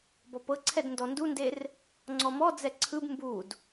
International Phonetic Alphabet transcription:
bɔpɤǀʰɛd ndɔndunder | ŋ͡ǀɔmɔd͡zɛ ǀʰɯb mbud

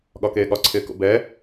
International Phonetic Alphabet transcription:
ɠɒkeːɠɒǀʰɪː ko̰bɛ

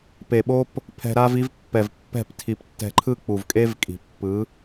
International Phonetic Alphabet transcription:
pe˨ɓo˦p | pʰɛ̤˨ɾa˧vi˧v pːɛ˨vpːɛ̤˦˨ptʰi˨p tːɛ̤˨ǃʰɯ˧ k͡pu˨vkʼe˦vkʼi̤˨pːɯ˨˦

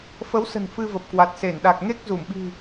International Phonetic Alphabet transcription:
fə˨˦wsə̤˨˩n fɨ˧və˨˩p̚kwa˨˩t̚ se˧˩nɗa˨˩k̚ ŋe˦˥k̚zu˧˩mɓi̤˨˩

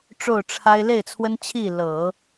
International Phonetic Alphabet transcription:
ʈ͡ʂo˥˩ʊ̯ʈ͡ʂʰa˥ɪ̯ le˥˩ɪ̯t͡sʰwə˥nt͡ɕʰi˥˩ lɤ˨˩˦

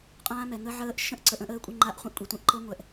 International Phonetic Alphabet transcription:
qʼã˦˥mɛ˧ŋə˦˥ ʕəː˦˥ʔ ʃə̃˦˥ʔǀə˧ʔ ə̃˦˥ʔəː˦˥kʷʼə˦˥ ŋ͡ǃa˦˥ʔχʷĩ˦˥ʔkʷʼi˧tʷĩ˦˥ʔ ǃɤ˦˥ŋʷɛ˧ʔ

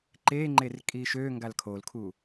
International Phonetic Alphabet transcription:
ǃeŋ͡ǃer kʼiʃøŋɡal kʰolkʰu

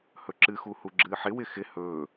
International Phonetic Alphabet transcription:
hɵǁɨxu huɡ͡ǁɨːħɪwɪ xɪ hɵː

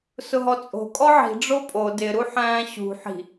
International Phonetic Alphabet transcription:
sʊɦɔt͡sʼo̤ kʼɔʕi̤ ɖ͡ʐopʼo dɪ ɾuħæ̃ːɕṳ ħi̤

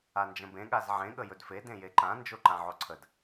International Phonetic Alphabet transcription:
and͡ʒə̃bẽ ɠazʕẽ ɠəjɵdfe dẽjeǃã nd͡ʒoǃãʕoǀʰəd

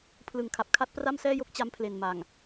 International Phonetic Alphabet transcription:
pʰlɯ˨˩ŋkʰa˨˩p̚kʰa˦˥t̚ pra˥˩msɛː˥˩jo˥˩k̚ t͡ɕa˦˥mpʰle˨˩nma˨˩ŋ

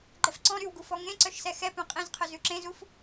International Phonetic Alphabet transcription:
ɡ͡ǃɛfǀɔ̃ ɾywɡu fɔŋẽǀœʃsɛ xɛ pœ̃qʼẽzqʰœ zʉǁẽzuf

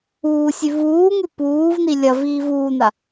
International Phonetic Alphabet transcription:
uːsʲʉ vuːŋʉ puːvni lʲɐviːv uːna

